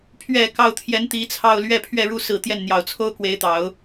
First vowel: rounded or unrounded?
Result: unrounded